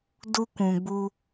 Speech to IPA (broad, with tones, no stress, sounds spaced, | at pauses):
d u˦ kʷ ũ˨ ɡ͡b u˦